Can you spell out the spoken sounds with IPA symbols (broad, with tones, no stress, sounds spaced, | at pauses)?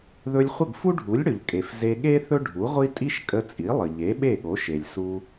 ð ɵ˧ lʲ χʷ ə˥˩ ɡ f u˥ ɖʱ u˩˥ lʲ ɽ ɵ˩ ʎ kʼ e˩ f z e˧ ɠ e˥ θ ɵ˥ ɖʱ u˩˥ ʁʷ i˥ tʼ i˥ ʃ kʼ ə˧ t͡sʼ i˩˥ lˠ ə˩ ʎ e˩˥ ɓ e˥˩ ɠ o˩˥ ʃ e˩ lʲ s u˧